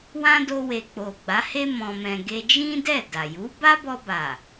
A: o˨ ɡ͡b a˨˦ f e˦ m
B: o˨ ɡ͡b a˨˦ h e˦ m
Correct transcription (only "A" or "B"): B